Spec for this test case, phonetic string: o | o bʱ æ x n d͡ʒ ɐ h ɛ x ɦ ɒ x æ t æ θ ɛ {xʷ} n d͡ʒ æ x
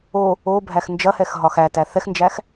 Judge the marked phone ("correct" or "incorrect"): incorrect